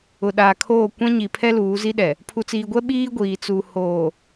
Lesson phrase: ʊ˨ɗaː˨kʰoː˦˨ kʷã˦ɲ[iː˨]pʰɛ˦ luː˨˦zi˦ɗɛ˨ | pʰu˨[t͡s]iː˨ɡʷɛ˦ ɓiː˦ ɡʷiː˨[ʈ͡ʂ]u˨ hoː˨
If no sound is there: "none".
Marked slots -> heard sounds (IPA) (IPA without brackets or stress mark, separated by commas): i˨, t͡s, t͡s